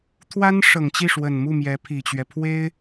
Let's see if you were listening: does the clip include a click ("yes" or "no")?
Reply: no